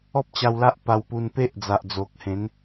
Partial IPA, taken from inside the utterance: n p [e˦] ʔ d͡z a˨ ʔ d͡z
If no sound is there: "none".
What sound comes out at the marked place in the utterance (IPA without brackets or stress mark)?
e˦